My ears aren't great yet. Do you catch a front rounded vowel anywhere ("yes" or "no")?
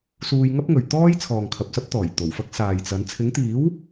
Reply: no